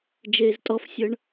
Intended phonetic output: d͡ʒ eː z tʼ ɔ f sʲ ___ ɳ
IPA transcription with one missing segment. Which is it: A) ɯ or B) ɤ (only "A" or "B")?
B